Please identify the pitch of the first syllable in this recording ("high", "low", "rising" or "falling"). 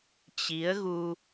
rising